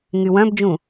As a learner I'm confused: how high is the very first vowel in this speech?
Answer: high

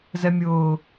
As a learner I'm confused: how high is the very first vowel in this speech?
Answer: mid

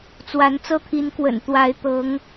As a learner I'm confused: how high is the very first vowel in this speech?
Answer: low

